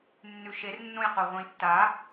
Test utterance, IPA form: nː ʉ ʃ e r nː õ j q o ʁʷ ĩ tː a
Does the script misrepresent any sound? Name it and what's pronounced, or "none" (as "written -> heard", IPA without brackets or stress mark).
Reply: none